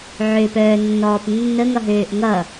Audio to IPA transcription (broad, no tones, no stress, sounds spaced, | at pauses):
ʕ ø p œː nː ɔː p nː ə ŋ ʌ ɦ øː ʔ ŋ ʌ